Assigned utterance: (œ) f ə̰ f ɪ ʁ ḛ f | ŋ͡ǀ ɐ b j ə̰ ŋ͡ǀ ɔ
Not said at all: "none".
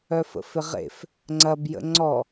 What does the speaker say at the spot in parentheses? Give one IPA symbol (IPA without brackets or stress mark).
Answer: œ